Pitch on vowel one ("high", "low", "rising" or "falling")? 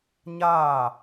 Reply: falling